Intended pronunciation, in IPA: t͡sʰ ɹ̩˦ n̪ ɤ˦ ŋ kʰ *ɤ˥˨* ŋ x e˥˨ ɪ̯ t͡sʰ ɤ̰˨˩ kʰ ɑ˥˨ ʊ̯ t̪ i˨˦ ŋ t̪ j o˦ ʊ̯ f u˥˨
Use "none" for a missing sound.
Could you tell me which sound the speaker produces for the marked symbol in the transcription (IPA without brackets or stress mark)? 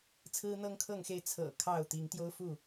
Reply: ɤ˥˨